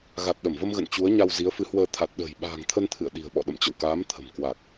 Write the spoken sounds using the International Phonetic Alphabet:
ɣ a˨˩ t̚ ɗ ə˧˩ m v ə˧ m ɣ ə̰˧˨ n t͡ɕ u˨˦ ə̯ ɲ a˧ w z i˨˦ ə̯ f ɨ˨˦ h w əː˧ t̪ʰ a˨˩ t̚ ɗ ə̤ː˨˩ j ɓ a̤ː˨˩ ŋ t̪ʰ ə˧ n t̪ʰ ɨ̰˧˨ ə̯ ɗ i̤˨˩ ə̯ ɓ ɔ̰˧˨ ɗ ə̰˧˨ m t͡ɕ ə̰˧˨ w k aː˨˦ m t̪ʰ ə̤˨˩ m k w a˨˩ k̚

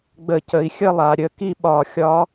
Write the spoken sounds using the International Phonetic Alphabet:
ɡ͡b ə˧˩˧ c ə˩˥ i̯ xʲ ə˥˨ lˠ a˩˧ ɾʲ ə˧˩˧ k i˥˨ ɓ ɒ˧˩˧ xʲ ɒ˦˥

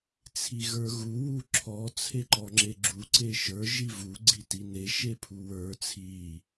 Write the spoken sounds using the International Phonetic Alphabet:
t͡sʰ i ɣ ə˞ ɣ u w u ǁʰ ɔ t͡sʰ e ǃ ɔ ŋ͡ǁ e ɡ͡ǁ u ǀ e ʃ ə˞ ʒ i v u ɡ͡ǀ i t i n e ʃ e pʰ u w ə˞ t͡sʰ i

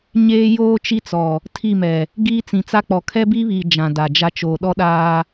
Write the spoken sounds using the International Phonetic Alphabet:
ɲ eː˦ j oː˦ t͡ʃ i˦ t͡s ɔ˨ | tʰ i˦˨ m ɛ˨ | ɡ iː˦ t͡s ĩ˨ t͡s a˦ k͡p ɔ˨ kʰ ɛ˦ b i˦ β iː˨ d͡ʒ ã˨ d a˨ d͡ʒ a˦ t͡ʃ oː˨ ɗ ɔ˦ ɗ aː˦

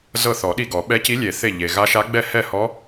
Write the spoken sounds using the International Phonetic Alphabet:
z ɤ˥˩ θ ɔ˨˩˦ ɗ i˥˩ ɡ ɔ˨˩˦ ɓ ɛ˧˥ c i˧˥ lʲ e˨˩˦ θ e˥˩ ʎ e˩ ɣ a˧˥ ʃ a˧˥ ɡ͡b ɛ˥˩ h ɛ˥˩ h ɔ˧˥

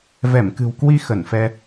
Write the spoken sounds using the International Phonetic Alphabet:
v ɛ˧˩ m k ɨ̤˨˩ w k w i˧ x ə˧˩ n f ɛ˧

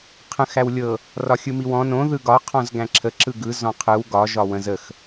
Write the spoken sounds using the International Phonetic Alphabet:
qʰ ə̃ x æ w lʲ ɤ | r ɒ xʲ ɯ m i w ɔ̃ n õ ð ɯ ɡ ɒ qʰ ɔ̃ z ɡ æ̃ ǁʰ ə ǁ ɯ ɡ ɯ z ɔ̃ qʰ ɯ w ɡ ɒ ʒ ɒ w ə̃ z ə x

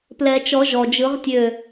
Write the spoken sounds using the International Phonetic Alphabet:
p l ɛ˨˩˦ t͡ʃ ɔ˨˩˦ ʒ ɔ˩ d͡ʒ ɯ˨˩˦ ʁ tʲ ø˧˩

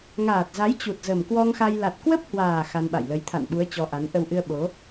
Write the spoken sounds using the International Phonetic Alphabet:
ŋ aː˨˩ t̚ z a˨˦ j t͡ɕ u˨˩ t̚ z ə˨˩ m k w ɔ˧ ŋ x a˧ j l a˨˩ t̚ k w ə˦˥ p̚ h w aː˨˩ x a˧ n ɓ a̰˧˨ j l ə˨˦ j t̪ʰ a̰˧˨ n ɓ u˨˦ ə̯ t͡ɕ ɔ˧ ʔ a˨˦ n ʔ ə˧ w ʔ ɨ˧ ə̯ ɓ o˨˦

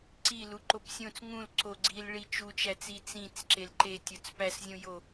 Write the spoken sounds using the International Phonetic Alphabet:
ǀ i l u ǃ o p sʲ õ t͡s ŋ ũ l ǀ o ɡ͡ǀ i l ɭ i t͡ʃ u t͡ʃ æ t͡s i t͡s ĩ t͡s ǁ e l ǃ e tʲ o t͡s p æ s zʲ õ j o

